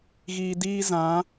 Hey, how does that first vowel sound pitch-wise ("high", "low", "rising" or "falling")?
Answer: low